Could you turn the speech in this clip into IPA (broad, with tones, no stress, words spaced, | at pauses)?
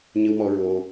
ɲɨ˧wmɔ˧ ɹo˧